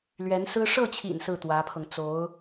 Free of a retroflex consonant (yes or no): no